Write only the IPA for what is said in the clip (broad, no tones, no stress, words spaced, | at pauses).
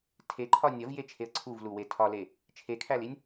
tʰeǃʰɒ nʲɒvjet͡ʃʰeə̯ ǀʰuvluwe tʰɒle | t͡ʃʰekʰælinʲ